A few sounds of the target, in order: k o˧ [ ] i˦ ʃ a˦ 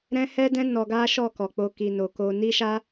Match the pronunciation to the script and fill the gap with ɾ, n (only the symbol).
n